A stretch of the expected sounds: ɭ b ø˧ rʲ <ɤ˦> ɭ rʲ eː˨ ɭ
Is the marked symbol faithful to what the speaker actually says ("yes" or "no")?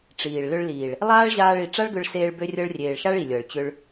no